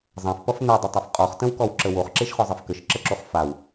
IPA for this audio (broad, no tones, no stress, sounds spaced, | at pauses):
zˤ ã f p ʌ f n ɛ dˤ ə tˤ a f qʼ ɔ χ t ə̃ w k ɔ w ǁ ə w o χ ǁ e ʃ χ ɔ zˤ e f k ə ʃ ǁ ə ǁ o χ f a w